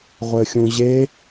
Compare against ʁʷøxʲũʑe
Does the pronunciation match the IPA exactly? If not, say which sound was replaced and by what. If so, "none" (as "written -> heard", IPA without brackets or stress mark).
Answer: ø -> ɘ